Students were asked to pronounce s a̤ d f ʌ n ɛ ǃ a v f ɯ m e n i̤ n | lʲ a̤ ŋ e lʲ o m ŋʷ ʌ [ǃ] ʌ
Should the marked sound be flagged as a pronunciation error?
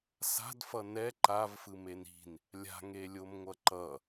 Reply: no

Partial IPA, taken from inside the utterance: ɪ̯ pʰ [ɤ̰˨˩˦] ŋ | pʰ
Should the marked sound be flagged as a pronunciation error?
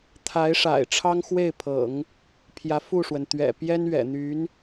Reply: no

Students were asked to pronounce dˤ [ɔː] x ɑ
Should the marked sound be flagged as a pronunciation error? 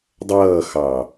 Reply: yes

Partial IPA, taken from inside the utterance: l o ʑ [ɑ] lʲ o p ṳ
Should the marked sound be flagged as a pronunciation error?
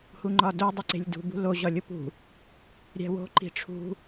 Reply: yes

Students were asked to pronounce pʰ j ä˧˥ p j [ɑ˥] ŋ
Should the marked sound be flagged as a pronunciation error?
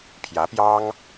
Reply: no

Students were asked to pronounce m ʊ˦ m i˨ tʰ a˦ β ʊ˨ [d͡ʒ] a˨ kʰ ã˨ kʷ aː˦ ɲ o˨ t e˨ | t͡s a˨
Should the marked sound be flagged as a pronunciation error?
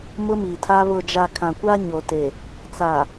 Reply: no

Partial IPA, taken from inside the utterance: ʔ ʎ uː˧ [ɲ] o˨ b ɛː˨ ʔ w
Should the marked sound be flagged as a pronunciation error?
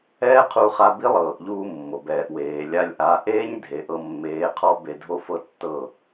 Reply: yes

